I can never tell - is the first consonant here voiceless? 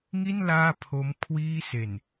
no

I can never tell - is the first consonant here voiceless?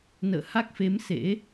no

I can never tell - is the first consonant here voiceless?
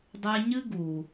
no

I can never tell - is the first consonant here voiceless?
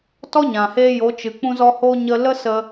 yes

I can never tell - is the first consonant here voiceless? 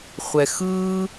yes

